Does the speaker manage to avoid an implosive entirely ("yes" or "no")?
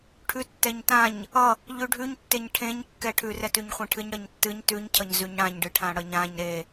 yes